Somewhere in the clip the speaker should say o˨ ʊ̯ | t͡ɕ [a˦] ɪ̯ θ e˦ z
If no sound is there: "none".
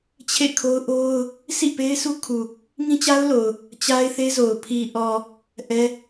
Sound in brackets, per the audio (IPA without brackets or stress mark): a˦